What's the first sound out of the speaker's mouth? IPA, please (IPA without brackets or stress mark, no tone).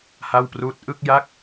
h